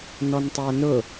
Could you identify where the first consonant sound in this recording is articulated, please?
alveolar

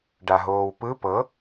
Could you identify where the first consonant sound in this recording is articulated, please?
retroflex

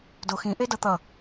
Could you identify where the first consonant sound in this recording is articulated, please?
alveolar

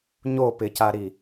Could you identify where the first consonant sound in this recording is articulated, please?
palatal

